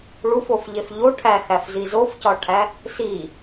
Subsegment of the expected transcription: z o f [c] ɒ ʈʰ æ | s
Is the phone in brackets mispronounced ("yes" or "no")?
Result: no